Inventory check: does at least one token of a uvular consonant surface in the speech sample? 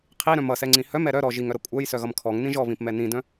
yes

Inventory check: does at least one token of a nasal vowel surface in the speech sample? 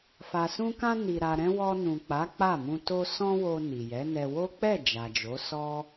yes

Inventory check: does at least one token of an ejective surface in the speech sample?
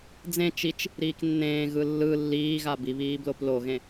no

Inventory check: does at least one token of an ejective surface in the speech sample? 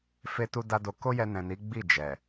no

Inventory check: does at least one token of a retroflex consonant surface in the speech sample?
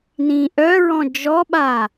no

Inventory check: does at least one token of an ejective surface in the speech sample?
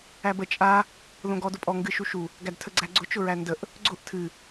yes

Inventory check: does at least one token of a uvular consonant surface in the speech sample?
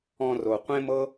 yes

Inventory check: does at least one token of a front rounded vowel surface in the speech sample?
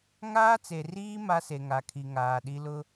no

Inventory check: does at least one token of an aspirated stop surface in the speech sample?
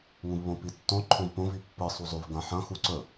yes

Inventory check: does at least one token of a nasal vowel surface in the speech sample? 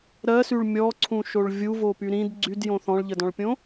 yes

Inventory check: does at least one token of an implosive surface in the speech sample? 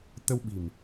yes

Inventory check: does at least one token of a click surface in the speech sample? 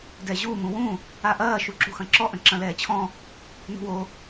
yes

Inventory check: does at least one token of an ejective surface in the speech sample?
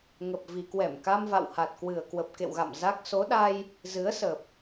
no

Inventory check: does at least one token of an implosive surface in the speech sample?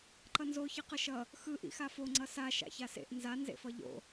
no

